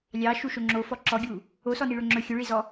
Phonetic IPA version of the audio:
lʲɑ ʃuʃoŋ͡ǁofɔ ǁɔɡʲu | osɔni ɭɵŋ͡ǁɵ xʲɵɭizɔ

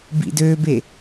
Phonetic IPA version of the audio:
bḭdøbe

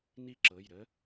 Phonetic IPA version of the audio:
ni˦˥ǁɤ˩˧˩jɾə˦˥

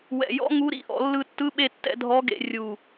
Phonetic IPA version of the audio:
wɛ̰˧˩jɔ̰˥ ŋu˧˥ɾḭ˥ʔɔ̰˧ lːɯ˧tːɯ˧˥ɓe˧tːɛ̰˧ dʱɔ˧˥ɡḛ˧ rʲu˧˩

